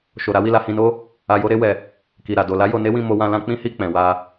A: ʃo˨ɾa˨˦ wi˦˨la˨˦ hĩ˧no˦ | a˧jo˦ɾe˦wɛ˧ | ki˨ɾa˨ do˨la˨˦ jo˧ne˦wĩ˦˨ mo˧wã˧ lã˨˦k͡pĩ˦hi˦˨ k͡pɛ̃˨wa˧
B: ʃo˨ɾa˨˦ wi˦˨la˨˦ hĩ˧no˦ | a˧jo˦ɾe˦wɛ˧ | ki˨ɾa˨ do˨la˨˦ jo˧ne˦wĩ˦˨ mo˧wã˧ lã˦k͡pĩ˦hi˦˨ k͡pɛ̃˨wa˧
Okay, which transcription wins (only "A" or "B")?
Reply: B